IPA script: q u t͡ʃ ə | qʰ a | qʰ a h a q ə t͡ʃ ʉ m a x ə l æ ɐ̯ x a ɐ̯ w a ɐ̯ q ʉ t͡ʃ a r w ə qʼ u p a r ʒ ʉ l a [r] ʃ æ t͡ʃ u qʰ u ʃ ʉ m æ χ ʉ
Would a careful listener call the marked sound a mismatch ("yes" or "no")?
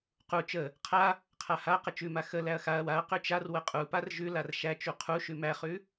no